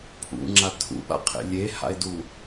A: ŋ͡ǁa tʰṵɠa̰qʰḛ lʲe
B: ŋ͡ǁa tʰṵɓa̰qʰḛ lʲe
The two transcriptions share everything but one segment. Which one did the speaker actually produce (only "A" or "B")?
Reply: B